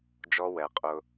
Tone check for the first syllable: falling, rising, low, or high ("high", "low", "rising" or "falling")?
high